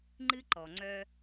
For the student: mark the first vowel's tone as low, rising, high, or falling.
high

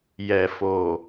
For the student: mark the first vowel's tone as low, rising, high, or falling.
low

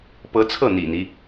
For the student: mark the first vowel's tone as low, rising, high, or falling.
rising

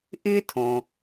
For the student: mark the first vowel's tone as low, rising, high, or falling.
high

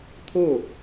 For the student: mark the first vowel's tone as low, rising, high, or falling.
falling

